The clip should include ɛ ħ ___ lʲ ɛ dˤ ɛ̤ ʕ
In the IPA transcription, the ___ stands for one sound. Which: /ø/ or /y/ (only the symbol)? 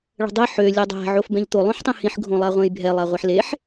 ø